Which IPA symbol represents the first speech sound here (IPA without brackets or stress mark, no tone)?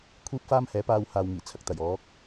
kʷʰ